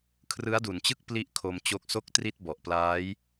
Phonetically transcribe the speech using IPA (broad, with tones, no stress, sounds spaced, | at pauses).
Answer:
kʰ r ɯ˦˥ a̯ d u˨˩ n t͡ɕ ɯ˥˩ k̚ p l i˥˩ ʔ kʰ o˧ m t͡ɕ o˦˥ k̚ s o˥˩ k̚ t r i˥˩ t̚ b ɔ˨˩ ʔ p l aː˦˥ j